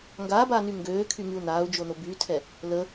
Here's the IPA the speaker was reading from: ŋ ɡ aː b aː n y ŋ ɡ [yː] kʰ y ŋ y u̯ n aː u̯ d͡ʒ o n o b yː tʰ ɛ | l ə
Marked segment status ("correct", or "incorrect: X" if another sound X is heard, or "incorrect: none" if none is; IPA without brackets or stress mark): incorrect: øː